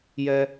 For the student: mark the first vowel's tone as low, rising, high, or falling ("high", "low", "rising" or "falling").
high